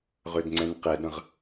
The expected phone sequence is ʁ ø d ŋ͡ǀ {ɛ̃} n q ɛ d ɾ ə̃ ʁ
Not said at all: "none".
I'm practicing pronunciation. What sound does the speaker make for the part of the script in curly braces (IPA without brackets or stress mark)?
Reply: ɛ̃